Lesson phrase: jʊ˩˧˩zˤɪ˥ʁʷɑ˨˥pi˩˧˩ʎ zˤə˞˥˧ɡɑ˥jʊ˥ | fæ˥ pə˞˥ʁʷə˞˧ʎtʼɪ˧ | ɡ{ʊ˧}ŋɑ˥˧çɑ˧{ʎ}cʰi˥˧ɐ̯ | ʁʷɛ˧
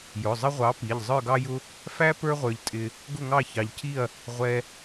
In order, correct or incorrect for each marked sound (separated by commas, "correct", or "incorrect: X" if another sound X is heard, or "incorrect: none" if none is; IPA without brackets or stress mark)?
incorrect: ʊ˥˧, correct